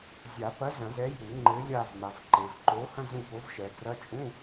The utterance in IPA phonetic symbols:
zʲ a˨˩˦ p ɐ˨˥ z ɐ̃˨˩˦ z ɛ˨˥ j u˨˩˦ ŋ͡ǃ ɘ˨˥ lʲ a˦˨ v m a˨ v ǃ e˨ v ǃ o˨˥ h ɐ̃˧˥˧ z ũ˦˨ p o˨˥ v ʃ ɛ˨ ɡ r ɐ˧˥˧ t͡ʃʼ ũ˧˥˧

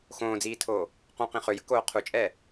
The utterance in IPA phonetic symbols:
x õː d͡z iː tʰ oː | q õ q ĩ χ ø j ə̤ k oː qʰ u t͡ʃʼ ɛ

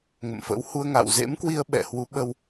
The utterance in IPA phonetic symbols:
ŋ ə̰˧˨ m f ə̰˧˥ w h u˧ ə̯ ŋ a̰˧˨ w z ḛ˧˥ m k w i˧ ə̯ ɓ ɛ̰˧˨ h w u˨˦ ɓ ə˧ w

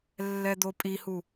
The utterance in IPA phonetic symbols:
lː ɛ d̪ o pʼ i h u

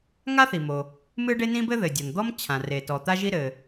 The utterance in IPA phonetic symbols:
ŋ a˥ θ i˩ m o˩ | m ɨ˥ ɖ e˥ n ĩ˥ b ɘ˥ ð ɘ˩ dʲ ɔ˩ n d̪ ɔ˥ m t͡ɕʰ ã˩ r e˩ t ɔ˩ t̪ a˥ ʒ i˥ ɾ ɘ˩

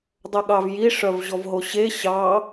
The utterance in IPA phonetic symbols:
dˤ œ ɠ ɑ v j i ʂ œ v ʑ ɔ v ɦ o ɕ e ɕ ɑ

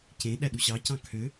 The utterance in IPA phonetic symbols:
c ẽ ɗ æ ɗ u ɕ ɑ c ɑ̃ kʰ ø

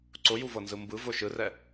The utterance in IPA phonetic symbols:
ǀ ʊ j u v ɤ n z ɯ m b ɯ v ʊ ʃ ɯ r ɛ

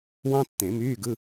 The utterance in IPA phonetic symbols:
w ɑ̃˥ tː ẽ˨˩˦ m yː˧˥˧ ɡ ɯ˧˥˧

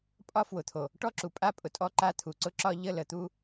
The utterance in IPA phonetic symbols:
pʼ ɒ˦ f w ʊ˨ t̪ʰ o˨ | ʈ ɔ˦ ǁ u˨ pʼ a˦ pʼ ʊ˨ tʼ ɔ˦ ǃ a˦˨ t̪ʰ u˨ ǀ ʊ˦ ǁ ɒ˦ ʎ ə˦˨ l ə˨ t̪ u˦

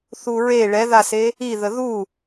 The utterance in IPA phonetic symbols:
θ u ɹ e ɭ ɛ ð a s e | i ð ə ð u

